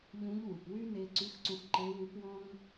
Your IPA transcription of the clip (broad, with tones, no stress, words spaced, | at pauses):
ʎũ˧˥ʎ wu˩pwy˥ ne˧ǀy˧˥xǀũ˧x ǃe˧˥wu˧˥pwɔ̃˥ŋ